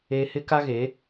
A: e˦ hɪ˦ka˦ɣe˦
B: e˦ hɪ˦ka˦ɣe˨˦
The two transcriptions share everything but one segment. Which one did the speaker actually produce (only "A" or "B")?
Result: B